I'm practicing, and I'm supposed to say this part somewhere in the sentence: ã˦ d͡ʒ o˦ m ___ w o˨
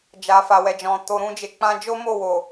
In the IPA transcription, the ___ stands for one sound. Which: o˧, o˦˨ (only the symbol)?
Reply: o˦˨